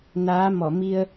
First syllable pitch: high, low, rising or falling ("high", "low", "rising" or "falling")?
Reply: rising